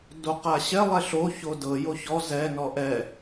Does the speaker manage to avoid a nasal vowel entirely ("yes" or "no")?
yes